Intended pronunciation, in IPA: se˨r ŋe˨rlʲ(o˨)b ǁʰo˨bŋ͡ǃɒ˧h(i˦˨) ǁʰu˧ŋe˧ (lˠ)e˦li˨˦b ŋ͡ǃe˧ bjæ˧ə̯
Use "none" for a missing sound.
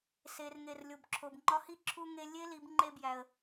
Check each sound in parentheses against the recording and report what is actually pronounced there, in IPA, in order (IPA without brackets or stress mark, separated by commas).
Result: o˨, i˦˨, lʲ